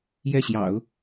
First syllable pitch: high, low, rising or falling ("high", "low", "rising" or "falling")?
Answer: falling